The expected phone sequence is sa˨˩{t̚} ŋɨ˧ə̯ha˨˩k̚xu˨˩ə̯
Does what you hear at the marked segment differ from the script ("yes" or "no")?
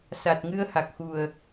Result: no